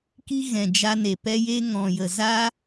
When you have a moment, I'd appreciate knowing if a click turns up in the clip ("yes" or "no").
no